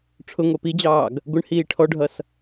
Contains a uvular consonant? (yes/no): no